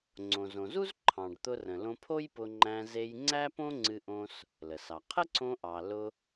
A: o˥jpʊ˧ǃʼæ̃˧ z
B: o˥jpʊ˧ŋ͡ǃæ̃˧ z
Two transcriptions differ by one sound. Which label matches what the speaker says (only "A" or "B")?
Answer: B